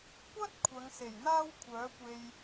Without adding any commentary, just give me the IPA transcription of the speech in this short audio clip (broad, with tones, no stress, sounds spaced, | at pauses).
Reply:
kʷ ɐ˥ t̚ kʷʰ ɐ˨˧ ŋ s e˨˩ j n̪ aː˥ w kʷʰ œː˨˥ kʷ e˧ j